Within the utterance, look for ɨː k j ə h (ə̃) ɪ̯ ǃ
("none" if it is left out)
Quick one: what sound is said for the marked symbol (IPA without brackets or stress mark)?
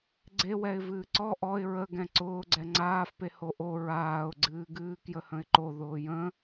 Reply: ə̃